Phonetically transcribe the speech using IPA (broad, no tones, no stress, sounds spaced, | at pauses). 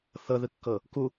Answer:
θ ɤ ð ɯ kː ɤ | k u